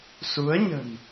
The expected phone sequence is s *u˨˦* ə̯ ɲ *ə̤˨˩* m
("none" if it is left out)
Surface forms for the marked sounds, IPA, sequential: u˨˦, ə̤˨˩

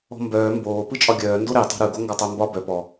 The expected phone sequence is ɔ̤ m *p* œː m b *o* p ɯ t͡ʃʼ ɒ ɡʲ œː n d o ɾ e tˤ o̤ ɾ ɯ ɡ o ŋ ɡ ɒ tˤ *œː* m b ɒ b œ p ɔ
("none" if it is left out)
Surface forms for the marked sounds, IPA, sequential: b, oː, œ

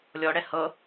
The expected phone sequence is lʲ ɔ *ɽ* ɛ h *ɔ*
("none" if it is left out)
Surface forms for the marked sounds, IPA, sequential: ɽ, ɤ

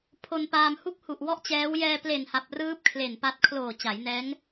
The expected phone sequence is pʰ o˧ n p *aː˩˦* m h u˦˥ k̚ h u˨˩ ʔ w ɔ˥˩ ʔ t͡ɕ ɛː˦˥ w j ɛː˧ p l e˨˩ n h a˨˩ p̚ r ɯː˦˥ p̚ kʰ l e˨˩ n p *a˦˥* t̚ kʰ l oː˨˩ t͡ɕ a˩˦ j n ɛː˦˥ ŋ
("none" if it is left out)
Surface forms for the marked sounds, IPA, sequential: aː˧, a˦˥

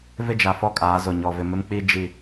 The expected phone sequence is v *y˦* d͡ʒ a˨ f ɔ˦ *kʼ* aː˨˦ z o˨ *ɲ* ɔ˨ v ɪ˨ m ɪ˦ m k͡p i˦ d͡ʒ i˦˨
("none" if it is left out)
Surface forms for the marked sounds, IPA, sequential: ɪ˦, kʼ, ɲ

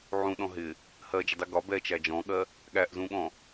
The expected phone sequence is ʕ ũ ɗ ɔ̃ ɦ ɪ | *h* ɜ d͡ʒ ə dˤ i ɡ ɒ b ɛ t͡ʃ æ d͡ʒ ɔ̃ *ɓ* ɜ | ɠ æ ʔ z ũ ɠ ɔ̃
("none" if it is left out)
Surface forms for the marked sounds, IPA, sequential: h, ɠ

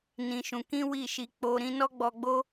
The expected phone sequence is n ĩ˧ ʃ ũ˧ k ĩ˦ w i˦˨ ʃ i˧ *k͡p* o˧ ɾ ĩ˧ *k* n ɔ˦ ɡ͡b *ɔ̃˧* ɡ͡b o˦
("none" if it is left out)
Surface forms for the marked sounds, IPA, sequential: k͡p, none, ɔ˧

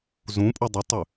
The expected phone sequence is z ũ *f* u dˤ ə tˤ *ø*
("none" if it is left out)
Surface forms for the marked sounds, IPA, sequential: pʼ, ø

